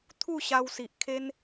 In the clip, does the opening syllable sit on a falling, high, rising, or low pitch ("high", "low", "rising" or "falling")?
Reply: falling